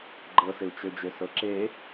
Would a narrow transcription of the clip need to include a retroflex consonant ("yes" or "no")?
no